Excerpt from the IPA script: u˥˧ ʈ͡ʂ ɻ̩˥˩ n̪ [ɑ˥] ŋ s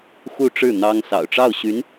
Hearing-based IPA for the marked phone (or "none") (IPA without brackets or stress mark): ɑ˥